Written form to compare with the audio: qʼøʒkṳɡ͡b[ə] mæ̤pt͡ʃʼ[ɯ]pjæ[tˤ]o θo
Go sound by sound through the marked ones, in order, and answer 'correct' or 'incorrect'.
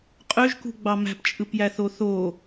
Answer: incorrect, correct, incorrect

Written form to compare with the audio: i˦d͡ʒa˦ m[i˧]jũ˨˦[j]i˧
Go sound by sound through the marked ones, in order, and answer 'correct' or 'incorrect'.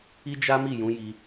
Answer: incorrect, correct

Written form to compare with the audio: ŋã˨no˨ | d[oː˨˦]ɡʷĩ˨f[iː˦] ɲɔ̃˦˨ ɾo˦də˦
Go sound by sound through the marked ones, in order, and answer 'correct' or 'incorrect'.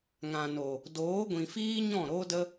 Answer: correct, correct

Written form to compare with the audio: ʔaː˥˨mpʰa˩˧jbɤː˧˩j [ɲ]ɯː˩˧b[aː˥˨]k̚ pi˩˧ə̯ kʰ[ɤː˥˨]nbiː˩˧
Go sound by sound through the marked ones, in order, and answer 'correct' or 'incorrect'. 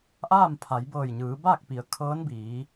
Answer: correct, correct, incorrect

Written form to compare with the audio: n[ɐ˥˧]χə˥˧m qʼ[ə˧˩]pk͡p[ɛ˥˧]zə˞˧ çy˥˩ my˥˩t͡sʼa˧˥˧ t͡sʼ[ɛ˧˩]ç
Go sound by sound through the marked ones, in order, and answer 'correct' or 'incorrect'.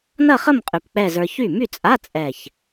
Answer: correct, incorrect, correct, correct

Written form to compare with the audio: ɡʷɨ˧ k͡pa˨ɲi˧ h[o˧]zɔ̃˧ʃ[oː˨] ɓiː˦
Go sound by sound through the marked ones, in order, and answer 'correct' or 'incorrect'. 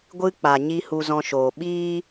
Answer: incorrect, correct

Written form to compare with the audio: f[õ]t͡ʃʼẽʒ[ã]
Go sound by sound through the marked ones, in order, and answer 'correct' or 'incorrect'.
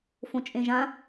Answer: correct, correct

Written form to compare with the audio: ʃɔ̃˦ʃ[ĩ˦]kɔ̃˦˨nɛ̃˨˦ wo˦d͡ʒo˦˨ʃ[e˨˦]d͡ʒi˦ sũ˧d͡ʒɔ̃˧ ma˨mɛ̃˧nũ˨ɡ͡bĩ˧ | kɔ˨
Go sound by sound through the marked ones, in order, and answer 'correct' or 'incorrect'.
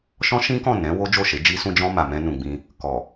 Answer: correct, correct

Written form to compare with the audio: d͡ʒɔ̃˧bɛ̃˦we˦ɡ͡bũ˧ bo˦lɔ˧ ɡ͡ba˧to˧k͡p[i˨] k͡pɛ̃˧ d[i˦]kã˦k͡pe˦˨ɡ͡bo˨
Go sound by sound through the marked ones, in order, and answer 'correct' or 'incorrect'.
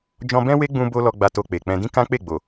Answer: incorrect, incorrect

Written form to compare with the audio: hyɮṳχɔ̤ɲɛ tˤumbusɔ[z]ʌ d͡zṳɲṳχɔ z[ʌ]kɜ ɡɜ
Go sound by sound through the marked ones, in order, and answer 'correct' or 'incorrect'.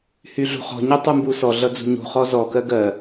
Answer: incorrect, incorrect

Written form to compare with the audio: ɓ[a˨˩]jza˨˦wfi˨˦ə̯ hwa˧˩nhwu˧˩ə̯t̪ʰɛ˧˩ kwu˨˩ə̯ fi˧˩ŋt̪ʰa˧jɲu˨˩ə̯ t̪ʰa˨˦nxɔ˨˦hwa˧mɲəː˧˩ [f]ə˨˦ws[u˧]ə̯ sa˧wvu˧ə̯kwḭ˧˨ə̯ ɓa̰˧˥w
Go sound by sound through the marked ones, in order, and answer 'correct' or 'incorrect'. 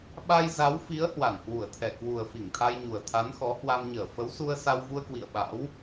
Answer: incorrect, correct, correct

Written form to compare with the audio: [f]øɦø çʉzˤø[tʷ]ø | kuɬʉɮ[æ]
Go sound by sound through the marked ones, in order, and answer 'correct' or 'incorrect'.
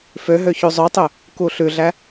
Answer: correct, incorrect, correct

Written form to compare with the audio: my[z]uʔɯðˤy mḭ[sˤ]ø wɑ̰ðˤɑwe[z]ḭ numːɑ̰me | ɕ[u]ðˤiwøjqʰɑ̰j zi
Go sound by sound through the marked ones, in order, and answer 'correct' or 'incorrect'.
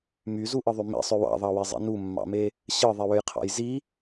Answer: correct, correct, incorrect, incorrect

